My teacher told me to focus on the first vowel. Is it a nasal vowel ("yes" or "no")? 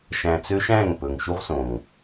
yes